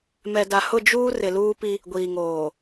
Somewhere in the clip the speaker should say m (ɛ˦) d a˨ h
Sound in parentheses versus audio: incorrect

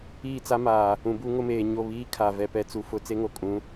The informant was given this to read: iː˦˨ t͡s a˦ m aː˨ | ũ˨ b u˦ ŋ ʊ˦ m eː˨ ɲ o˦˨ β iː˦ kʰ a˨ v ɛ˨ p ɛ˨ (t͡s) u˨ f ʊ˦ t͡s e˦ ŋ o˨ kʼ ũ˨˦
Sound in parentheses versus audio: correct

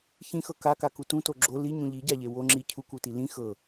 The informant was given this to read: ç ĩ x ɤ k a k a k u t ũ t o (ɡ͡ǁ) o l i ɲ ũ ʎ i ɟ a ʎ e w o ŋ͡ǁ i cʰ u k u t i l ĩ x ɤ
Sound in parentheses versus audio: correct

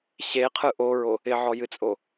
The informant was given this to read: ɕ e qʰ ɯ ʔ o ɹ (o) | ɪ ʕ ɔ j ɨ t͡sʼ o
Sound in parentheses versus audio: correct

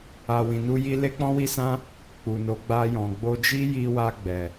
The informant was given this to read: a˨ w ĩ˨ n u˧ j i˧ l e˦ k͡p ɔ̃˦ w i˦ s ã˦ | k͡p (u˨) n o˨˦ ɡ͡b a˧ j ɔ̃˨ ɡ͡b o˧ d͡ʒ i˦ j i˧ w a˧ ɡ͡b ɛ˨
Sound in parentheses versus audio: correct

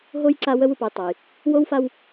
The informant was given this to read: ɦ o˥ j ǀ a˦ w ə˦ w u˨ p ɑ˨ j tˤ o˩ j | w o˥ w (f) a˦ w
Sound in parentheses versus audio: correct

